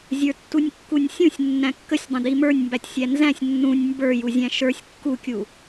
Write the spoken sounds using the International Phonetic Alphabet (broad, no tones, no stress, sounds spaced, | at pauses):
zʲ ə˞ tː u nʲ kː u nʲ sʲ ũ sʲ nː æ̃ kː ə sʲ dˤ ə̃ d i m ə˞ nʲ m b æ tʲ sʲ æ n z æ̃ sʲ nː ũ nʲ m b ə˞ j u zʲ æ̃ ʃ ə˞ sʲ kː u kʲ u